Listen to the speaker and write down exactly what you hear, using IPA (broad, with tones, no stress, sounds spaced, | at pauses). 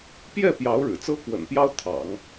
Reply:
p j ɛ˥˩ p j ɑ˧˥ ʊ̯ ɻ ɻ̩˨˩ t͡s ɤ˥ k w ə̰˨˩ n p j ɑ˥ ʊ̯ t̪ʰ ɑ̰˨˩˦ ŋ